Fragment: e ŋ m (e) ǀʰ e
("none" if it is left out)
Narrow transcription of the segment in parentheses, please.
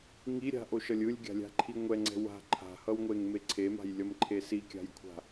e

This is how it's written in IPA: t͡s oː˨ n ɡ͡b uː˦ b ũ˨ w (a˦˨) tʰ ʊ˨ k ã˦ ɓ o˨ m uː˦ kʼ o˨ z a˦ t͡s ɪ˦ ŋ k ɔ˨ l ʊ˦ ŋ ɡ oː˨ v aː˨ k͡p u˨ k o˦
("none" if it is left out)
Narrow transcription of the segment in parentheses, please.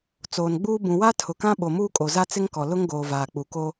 a˦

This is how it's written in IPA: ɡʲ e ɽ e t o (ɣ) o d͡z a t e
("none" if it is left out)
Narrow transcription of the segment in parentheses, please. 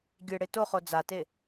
χ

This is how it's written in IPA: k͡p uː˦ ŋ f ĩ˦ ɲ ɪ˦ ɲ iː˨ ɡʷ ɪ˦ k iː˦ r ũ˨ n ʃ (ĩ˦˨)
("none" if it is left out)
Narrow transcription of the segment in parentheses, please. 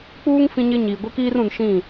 ĩ˦˨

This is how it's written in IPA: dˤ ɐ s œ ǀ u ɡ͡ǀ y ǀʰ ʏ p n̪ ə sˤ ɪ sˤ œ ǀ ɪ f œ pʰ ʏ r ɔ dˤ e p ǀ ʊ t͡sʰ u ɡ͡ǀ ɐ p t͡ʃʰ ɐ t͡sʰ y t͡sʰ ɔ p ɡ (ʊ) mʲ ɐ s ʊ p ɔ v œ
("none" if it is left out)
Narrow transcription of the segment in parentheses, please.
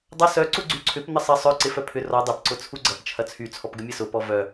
ə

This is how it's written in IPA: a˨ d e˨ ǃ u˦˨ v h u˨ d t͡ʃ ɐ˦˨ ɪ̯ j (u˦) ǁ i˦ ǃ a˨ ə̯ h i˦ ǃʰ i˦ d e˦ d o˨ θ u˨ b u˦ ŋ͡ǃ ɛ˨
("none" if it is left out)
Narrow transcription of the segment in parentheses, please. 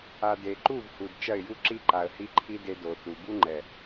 u˦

